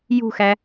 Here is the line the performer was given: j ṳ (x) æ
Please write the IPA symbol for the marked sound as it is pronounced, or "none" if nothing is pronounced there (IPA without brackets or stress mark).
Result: x